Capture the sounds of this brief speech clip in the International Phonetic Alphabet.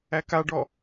ækaɖɔ

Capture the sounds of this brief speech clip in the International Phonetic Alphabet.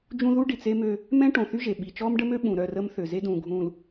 d͡ʒũ˦ðu˦ ɖi˨t͡s e˦mø˦ | mɛ̃˦ ʈõ˨θy˦ʒe˨ ɓi˨t͡ʃɔː˦mɖə˦mø˦ ɓũ˨ɾœ˦˨rə˦m θø˨ze˦dũː˨ɡʱũː˨l

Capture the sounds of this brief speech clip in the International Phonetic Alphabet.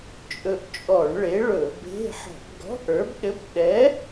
t͡ʃʼɵ˧ʔt͡ʃʼɔ˧˩˧ɳ ɭe˨˥ɭɵ˧˩˧be̤˧˥˧ ħɔ̤˧˩˧bɡɔ̤˧˥˧ʔ ə˞˨˥bɗɘ˧˥˧b ɗɛ˨˥

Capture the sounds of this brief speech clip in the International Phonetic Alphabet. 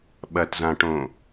ɓɐtzãʈõ

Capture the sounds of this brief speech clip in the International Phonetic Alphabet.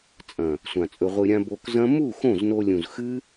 t͡sʼɐ̃˨ | sʷã˨t͡sʼɵ˧ʁʷɨ˧ɾʲã˦ bo˧kzɐ̃˦ mu˦˨ xõ˦˨zno˧lʲũ˨z xɨ˦

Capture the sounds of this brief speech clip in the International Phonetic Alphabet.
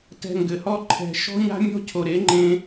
tɛ̤˧ŋɡɘ˨hɔ˦ǃʰɛ̤˧ ʃɔ̤˦ɲa̤˦mʲɔ̤˦cʰo˨ ɾe˨˦ŋ͡ǃẽ˧

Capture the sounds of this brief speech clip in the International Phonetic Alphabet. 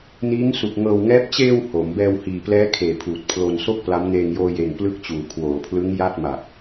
niː˦˥ŋsu˨˩k̚ ŋɤː˧wŋɛː˦˥p̚ t͡ɕeː˧w ho˩˦m bɛː˧whiː˨˩plɛː˦˥ kʰeː˨˩pʰuː˨˩t̚ pʰlo˧nso˥˩k̚pla˦˥m neː˧ŋjoː˧je˨˩n plɯ˦˥k̚t͡ɕuː˩˦ kʰwoː˩˦pʰlɯ˦˥ŋ ja˥˩t̚ma˨˩k̚

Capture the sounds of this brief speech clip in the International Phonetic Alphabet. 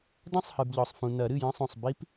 dɐ̃˦˥sˤhɨ˨bʎɔ˨sˤfũ˨ nɐ˨˩˦ɾɨ˥˩jɐ̃˦˥sˤũ˨sˤ bi˦˥p

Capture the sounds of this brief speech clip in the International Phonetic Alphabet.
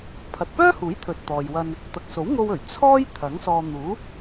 pʰɐ˨t̚pœː˥huː˨˥j t̪ʰɵ˨t̚t̪ɔː˨jwɐ˧n | t̪ɐ˨k̚so˨˥wŋo˧wɵ˨˩ɥ t͡sʰɔː˥j t̪ʰɐ˨˥ŋsɔː˧ n̪uː˨˥

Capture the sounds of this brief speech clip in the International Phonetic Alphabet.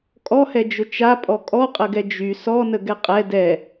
kʼɔhɛd͡ʒʊ t͡ʃapʼɔ kʼɔqʼəɡɛ d͡ʒy sɔnəɡɛ qʼɛ dɛ

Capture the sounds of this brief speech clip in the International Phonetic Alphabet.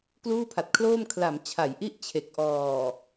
kluː˥˩pʰa˨˩t̚kʰloː˥˩m kʰla˩˦m t͡ɕʰa˩˦jʔi˥˩ʔ t͡ɕʰe˨˩k̚ ʔɔː˨˩

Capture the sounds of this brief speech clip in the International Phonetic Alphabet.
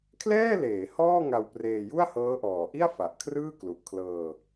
kʰlɛː˥˩ leː˩˦ hɔː˥˩ ŋa˧wpreː˧ju˥˩a̯ hɤː˦˥ʔɔː˨˩ʔi˥˩a̯ fa˨˩ʔkʰrɯː˥˩ klu˨˩ʔkʰlɤː˧

